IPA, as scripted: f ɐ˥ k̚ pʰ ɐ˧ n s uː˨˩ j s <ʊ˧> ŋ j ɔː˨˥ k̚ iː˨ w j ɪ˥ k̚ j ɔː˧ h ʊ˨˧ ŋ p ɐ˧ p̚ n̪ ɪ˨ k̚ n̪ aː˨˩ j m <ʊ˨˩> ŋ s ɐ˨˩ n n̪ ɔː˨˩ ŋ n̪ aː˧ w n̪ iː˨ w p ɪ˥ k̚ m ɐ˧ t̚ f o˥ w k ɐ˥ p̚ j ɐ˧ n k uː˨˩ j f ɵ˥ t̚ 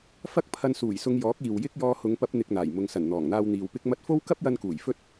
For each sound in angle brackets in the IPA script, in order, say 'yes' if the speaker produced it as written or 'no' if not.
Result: yes, no

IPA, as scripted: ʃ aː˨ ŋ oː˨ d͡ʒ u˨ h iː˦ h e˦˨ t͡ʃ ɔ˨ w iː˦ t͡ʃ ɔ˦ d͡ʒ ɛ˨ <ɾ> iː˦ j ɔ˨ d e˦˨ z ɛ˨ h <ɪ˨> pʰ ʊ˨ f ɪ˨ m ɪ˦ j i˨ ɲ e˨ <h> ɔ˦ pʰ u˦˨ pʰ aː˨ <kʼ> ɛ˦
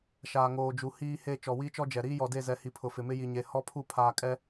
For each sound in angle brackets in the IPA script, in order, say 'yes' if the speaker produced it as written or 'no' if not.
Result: yes, no, yes, yes

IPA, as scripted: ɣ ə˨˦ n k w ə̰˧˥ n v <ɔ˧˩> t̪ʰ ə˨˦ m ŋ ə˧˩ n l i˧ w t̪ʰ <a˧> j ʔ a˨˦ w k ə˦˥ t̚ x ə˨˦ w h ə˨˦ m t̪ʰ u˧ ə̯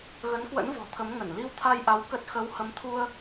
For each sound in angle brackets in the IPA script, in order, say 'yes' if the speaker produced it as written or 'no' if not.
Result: no, yes

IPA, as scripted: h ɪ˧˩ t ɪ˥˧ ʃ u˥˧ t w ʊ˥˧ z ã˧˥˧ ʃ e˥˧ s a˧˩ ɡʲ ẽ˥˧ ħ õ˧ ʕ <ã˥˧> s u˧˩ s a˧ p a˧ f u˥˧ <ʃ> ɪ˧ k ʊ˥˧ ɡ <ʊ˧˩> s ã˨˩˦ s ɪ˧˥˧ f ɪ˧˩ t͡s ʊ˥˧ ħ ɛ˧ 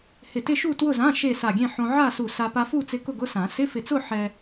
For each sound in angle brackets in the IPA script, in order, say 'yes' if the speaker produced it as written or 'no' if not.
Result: no, no, no

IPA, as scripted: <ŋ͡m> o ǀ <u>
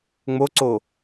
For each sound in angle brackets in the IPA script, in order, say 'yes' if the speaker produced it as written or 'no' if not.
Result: yes, no

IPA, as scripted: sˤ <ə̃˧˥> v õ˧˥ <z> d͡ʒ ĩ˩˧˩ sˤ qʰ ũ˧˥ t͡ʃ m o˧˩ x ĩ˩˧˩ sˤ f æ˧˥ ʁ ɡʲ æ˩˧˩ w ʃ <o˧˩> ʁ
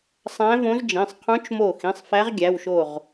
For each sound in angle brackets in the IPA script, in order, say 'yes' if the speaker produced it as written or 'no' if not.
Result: no, yes, yes

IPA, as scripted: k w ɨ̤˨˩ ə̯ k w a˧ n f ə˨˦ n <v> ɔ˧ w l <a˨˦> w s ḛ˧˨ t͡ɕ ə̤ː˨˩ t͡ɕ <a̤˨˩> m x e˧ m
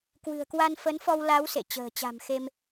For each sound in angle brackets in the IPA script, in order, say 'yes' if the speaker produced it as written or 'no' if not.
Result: no, yes, yes

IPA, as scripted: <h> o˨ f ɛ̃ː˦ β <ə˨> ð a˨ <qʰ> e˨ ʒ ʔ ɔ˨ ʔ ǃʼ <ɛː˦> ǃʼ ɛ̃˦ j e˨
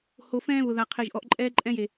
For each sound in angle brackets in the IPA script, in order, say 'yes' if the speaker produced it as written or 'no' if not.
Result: yes, no, yes, yes

